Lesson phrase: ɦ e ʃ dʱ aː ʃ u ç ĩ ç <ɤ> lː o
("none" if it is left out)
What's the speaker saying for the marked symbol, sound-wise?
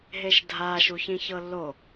ɤ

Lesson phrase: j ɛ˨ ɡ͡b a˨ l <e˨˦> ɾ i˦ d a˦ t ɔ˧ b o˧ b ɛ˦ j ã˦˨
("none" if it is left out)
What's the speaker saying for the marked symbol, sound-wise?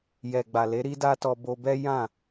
e˨˦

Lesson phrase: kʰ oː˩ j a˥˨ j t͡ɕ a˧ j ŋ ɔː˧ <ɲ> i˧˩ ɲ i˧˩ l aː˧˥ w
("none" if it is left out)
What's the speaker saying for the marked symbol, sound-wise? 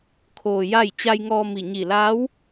m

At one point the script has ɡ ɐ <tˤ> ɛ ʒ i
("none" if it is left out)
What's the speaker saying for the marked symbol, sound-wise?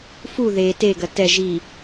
t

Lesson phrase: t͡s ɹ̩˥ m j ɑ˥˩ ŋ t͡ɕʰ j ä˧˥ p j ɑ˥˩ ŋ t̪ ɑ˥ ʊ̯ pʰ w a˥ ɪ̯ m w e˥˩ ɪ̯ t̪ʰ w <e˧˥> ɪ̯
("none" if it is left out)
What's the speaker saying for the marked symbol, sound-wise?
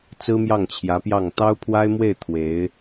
e˧˥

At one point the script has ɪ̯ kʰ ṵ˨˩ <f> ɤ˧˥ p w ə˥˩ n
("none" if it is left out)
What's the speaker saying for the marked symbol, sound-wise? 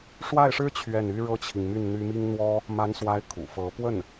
f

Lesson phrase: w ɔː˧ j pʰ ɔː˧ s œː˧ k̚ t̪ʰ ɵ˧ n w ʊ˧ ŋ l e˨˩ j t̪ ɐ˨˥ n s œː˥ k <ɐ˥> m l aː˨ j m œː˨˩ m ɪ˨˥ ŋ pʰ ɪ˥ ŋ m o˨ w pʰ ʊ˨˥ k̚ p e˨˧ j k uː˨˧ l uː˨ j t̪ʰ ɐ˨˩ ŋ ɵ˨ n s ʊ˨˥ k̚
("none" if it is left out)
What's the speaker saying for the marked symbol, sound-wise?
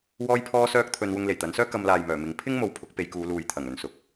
ɐ˧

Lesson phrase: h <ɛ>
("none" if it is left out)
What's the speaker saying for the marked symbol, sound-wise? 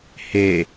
e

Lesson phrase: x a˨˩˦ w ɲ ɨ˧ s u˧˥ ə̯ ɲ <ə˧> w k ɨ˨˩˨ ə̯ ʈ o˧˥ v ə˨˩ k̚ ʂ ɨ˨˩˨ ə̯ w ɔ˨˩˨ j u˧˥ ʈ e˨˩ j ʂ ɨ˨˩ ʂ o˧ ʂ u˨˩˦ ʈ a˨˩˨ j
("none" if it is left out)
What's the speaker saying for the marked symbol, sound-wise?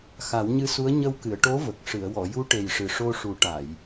ə˧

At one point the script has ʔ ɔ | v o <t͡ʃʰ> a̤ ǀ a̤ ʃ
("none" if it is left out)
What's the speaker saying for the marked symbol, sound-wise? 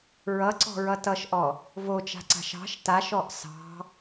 t͡ʃ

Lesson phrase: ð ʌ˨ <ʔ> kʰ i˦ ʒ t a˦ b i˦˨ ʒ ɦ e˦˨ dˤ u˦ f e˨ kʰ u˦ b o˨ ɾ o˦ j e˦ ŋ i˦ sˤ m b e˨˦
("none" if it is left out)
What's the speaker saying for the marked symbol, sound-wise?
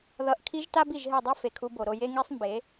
ʔ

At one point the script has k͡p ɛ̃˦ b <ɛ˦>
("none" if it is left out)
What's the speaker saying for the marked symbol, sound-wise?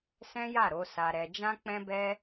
ɛ˦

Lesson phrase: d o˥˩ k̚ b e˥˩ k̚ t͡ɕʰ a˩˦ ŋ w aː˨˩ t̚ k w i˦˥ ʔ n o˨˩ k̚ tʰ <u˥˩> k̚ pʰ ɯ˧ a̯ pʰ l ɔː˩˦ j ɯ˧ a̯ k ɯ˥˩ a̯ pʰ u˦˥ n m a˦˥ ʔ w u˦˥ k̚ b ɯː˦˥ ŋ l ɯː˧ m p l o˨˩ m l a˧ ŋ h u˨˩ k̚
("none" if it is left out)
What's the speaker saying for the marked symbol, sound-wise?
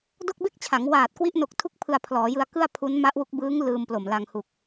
u˥˩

